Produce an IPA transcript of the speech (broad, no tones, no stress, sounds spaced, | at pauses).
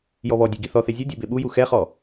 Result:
j ɔ β ɔ dʲ e ɡ i θ ɔ θ e zʲ u dʲ ɛ b e ɓ u j u x ɛ χ ɔ